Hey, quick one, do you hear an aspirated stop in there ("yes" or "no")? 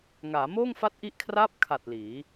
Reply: yes